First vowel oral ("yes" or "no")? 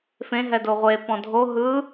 no